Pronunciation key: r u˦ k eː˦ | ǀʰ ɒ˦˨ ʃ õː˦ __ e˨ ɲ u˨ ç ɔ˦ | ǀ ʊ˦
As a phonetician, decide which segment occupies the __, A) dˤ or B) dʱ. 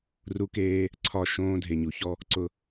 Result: B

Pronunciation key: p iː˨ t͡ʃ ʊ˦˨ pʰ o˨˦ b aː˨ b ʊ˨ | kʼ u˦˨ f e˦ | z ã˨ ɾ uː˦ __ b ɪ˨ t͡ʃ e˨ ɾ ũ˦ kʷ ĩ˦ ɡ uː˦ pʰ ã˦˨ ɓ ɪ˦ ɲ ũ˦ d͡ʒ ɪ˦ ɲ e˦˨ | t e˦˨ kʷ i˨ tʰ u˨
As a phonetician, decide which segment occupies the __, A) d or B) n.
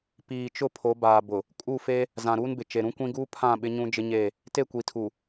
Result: B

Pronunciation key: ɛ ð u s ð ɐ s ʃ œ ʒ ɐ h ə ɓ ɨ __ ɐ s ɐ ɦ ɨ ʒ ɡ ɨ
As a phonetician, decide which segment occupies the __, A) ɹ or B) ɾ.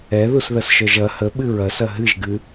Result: A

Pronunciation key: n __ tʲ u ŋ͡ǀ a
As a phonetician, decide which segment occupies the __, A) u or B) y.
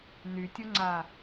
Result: B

